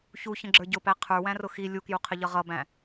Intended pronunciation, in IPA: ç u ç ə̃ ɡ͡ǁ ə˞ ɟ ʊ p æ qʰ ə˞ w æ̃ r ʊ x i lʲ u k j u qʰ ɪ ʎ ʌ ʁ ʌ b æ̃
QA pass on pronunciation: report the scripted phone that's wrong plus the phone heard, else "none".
none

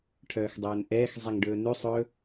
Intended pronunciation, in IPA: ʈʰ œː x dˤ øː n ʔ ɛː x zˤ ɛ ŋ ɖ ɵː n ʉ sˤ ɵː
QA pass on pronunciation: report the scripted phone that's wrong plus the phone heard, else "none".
øː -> ɵː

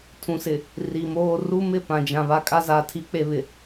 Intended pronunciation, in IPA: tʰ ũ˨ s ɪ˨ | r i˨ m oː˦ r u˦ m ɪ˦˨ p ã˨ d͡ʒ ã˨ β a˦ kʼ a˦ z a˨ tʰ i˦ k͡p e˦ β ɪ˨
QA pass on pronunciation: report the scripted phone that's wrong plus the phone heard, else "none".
none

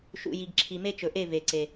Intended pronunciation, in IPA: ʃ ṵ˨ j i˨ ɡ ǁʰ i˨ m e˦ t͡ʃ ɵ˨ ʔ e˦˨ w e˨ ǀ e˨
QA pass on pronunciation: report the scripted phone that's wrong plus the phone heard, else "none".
w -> v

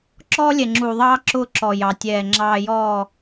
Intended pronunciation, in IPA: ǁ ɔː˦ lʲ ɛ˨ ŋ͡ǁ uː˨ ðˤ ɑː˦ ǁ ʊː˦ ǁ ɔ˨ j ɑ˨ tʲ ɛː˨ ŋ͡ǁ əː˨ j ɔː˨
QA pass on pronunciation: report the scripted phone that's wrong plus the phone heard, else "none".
əː˨ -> ɑː˨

